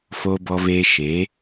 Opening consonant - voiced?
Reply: no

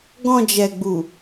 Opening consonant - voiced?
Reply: yes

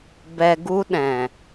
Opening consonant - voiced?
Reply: yes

